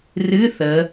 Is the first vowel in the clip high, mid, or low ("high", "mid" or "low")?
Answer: high